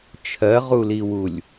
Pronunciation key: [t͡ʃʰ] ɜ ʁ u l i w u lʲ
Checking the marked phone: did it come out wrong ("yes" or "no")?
no